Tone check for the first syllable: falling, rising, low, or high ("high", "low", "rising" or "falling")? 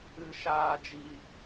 low